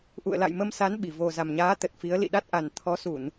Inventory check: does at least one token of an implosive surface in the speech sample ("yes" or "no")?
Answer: yes